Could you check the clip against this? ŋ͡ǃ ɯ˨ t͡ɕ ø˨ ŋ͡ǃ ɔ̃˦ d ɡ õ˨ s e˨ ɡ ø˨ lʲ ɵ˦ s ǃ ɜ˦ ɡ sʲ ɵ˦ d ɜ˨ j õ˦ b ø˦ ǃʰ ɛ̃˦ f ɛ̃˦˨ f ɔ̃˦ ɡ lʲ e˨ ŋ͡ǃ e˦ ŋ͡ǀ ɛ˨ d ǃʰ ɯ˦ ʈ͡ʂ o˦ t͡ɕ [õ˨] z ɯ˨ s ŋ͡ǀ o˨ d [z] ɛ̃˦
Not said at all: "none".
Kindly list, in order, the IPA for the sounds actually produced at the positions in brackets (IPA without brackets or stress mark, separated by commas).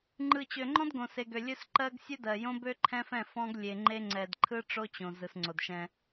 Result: õ˨, ʃ